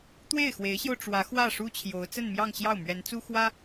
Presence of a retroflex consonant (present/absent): present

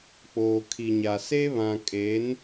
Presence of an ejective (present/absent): present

